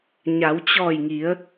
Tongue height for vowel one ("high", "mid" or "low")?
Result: low